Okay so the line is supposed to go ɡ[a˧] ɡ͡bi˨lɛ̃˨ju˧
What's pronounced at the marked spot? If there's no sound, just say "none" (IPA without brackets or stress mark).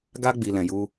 a˧